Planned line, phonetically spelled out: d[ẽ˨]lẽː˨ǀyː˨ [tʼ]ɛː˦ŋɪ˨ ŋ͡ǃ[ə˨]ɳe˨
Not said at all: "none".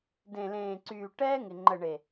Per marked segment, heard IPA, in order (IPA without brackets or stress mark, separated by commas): ẽ˨, ʈ, ə˨